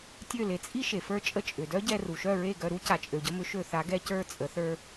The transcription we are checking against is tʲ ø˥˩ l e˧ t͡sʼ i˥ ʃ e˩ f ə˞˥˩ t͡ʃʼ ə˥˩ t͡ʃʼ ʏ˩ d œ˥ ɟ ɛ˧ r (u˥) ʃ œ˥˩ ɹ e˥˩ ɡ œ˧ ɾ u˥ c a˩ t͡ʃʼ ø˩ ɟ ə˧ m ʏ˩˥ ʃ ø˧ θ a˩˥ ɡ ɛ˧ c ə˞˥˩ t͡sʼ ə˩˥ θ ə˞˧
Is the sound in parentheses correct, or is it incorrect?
incorrect